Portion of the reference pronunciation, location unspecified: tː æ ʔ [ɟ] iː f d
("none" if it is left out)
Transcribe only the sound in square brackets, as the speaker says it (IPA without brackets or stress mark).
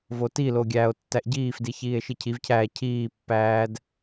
ɟ